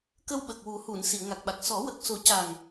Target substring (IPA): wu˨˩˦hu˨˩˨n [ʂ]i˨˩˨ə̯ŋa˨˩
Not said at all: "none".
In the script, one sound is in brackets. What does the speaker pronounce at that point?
s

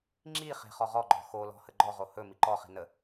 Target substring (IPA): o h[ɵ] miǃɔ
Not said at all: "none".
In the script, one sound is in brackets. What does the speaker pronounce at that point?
ɵ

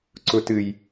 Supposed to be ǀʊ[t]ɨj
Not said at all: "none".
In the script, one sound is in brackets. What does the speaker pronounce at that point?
t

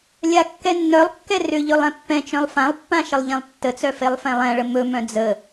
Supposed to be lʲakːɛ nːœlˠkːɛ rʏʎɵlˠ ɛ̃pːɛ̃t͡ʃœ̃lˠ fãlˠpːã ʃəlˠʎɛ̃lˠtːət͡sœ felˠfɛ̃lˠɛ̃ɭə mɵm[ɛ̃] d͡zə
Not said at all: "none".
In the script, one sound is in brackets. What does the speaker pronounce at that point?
œ̃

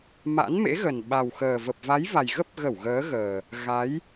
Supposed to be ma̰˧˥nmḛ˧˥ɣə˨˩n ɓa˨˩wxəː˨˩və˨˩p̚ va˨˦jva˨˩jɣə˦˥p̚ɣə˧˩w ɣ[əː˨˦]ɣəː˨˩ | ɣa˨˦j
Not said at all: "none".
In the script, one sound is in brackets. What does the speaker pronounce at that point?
əː˨˦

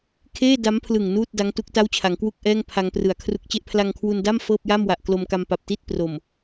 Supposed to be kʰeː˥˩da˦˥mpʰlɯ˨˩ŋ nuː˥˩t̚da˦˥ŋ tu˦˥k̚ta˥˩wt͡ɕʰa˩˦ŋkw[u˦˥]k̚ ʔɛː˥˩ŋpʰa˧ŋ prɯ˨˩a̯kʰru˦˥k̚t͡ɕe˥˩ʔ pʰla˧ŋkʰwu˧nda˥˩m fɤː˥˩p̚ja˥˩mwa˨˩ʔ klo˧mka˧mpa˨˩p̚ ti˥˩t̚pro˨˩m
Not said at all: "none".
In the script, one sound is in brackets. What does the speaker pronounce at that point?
u˥˩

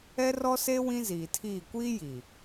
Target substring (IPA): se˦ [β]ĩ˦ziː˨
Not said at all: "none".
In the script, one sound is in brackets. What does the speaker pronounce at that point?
w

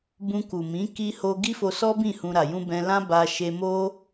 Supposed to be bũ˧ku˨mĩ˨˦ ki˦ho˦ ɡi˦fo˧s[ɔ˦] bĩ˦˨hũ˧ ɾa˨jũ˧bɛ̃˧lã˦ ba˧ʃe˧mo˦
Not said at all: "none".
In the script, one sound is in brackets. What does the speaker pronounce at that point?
ɔ˦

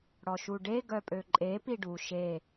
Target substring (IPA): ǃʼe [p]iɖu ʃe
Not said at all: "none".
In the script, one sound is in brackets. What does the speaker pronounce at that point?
p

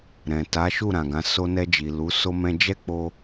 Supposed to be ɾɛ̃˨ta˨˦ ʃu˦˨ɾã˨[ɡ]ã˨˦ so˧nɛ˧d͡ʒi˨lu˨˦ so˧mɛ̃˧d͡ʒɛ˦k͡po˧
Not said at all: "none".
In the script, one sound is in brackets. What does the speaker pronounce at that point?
ɡ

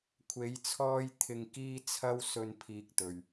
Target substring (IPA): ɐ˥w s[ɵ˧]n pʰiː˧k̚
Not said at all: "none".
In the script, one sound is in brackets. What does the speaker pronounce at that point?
ɵ˧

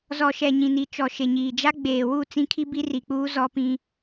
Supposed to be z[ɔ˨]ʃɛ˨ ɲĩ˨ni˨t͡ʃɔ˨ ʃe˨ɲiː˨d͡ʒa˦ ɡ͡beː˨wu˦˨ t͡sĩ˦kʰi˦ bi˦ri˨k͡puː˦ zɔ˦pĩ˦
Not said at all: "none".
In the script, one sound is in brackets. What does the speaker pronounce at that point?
ɔ˨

